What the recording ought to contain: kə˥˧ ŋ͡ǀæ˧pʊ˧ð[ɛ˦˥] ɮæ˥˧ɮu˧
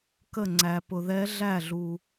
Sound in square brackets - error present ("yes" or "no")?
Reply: no